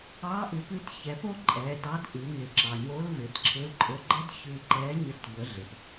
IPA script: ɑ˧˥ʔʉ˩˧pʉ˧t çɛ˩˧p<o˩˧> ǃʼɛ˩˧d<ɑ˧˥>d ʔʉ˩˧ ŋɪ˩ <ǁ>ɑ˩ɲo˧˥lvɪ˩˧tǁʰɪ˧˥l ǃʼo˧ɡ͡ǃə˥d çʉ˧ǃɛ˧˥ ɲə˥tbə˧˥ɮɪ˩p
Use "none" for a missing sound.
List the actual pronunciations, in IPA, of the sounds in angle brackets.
o˥, ɑ˧˥, ǁ

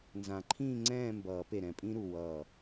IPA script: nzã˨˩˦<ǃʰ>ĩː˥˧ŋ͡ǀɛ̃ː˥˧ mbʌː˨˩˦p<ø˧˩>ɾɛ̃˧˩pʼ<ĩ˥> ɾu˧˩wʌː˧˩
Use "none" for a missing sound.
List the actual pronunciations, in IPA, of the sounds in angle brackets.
ǃʰ, e˧˩, ĩ˥

